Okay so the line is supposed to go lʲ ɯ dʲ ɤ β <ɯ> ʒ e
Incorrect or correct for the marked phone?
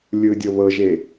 incorrect: ɤ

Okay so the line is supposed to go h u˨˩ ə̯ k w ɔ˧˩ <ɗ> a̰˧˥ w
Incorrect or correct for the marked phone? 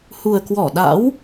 correct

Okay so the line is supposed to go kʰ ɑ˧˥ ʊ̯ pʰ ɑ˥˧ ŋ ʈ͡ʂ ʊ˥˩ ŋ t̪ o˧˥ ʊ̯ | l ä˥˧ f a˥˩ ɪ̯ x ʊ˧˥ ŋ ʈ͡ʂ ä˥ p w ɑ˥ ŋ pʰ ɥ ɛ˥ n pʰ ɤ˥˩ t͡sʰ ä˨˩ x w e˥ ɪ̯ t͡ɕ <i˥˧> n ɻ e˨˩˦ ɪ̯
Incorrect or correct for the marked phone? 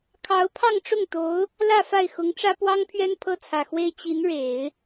incorrect: i˧˥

